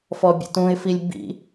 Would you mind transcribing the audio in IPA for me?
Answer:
fɔbʲə̰tũɪ̯filʲ bḭ

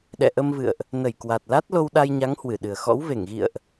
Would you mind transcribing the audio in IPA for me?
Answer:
ɗɛ̰˧˨ ʔə˧mvɨ̰˧˨ə̯ʔ | nə˧˩j kwa˨˩t̚la˦˥t̚ lo˧wɗa˧jɲa˨˦ŋ hwɨ˧˩ɗɨ˨˩ə̯ xɔ̰˧˥w ve˧˩ŋɣḭ˧˨ə̯ʔ

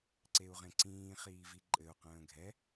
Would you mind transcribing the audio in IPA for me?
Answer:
ǀeu̯ʁẽǀĩː χiːviǃʼɘu̯ qə̃ːɡʱɛ

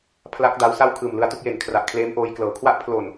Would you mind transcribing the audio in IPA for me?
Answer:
pʰla˦˥k̚da˦˥wsa˥˩w kʰɯː˨˩mlɯ˧a̯tu˥˩k̚je˨˩n kʰra˨˩ʔkʰleː˦˥mʔoː˧j klɤː˩˦kʰwa˦˥ʔ pʰlo˨˩n

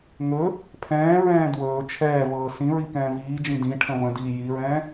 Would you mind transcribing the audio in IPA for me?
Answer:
ŋɵ | pʰɛ̃ːɹɛ̃ː dwɵː t͡ʃʰɛːvɤː sĩɹi kɛ̃ːviːd͡ʒĩ dĩ ʈʰə̃və̃diː jiɹɛ̃ː

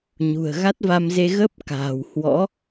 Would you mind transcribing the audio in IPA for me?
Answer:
ɲṳ˨˩ə̯ɣa˦˥t̚va˧mze˧ ɣə˦˥p̚ ka̤ː˨˩whwɔ̰˧˥

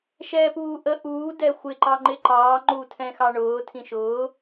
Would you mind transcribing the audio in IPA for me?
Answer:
ʃɛːpuːʔə ʔuː dɛxʷɪ ǃɑŋ͡ǃɪǃɑː ŋ͡ǃutʰɛ̃xɑɳʊː tʰĩʃʊː

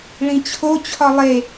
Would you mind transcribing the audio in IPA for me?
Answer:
ɭĩt͡ɕʰo t͡ɕʰɒlˠe

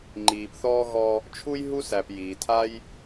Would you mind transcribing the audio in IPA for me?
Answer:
ŋ͡ǃiː˩pθɔː˥ ɣɔ˧ | t͡ʃʰu˥j ɦu˥sæ˩p jiː˩tʰa˥j

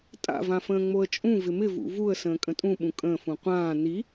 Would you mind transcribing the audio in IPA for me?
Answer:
tʼa̰vãfə̃ːŋ͡moə̯ t͡ʃʼũ vɪmɪ vṵvuə̯ sə̃ːkʼə̃tʼũɓũ kʼə̃ːfũ qʷãː ni

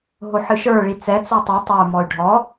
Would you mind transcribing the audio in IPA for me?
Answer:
ɦoħɨʃə˞ ɭit͡sɛ t͡sutˤə˞ tˤə˞ mɔy̯ɖʱɔ

